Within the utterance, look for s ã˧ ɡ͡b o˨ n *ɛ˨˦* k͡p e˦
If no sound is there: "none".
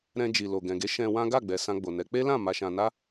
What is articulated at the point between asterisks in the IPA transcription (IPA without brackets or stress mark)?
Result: ɛ˨˦